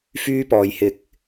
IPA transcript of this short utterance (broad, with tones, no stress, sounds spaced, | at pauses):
f yː˧ p ɔː˨ j h ɪ˨˥ k̚